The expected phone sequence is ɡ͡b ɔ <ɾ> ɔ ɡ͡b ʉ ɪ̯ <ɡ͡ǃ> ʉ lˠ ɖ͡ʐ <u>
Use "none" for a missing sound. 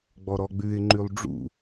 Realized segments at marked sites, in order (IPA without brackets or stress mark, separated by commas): ɾ, ŋ͡ǃ, ṵ